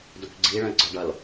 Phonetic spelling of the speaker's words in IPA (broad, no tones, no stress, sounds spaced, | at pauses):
d o kʷ ɡ͡ǀ i ɭ ə̃ e̯ ɡ͡ǀ ɒ ɖ ʌ l